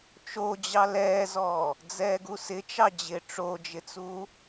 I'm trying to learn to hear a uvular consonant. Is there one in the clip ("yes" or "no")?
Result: no